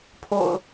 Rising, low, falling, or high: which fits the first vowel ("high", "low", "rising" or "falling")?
low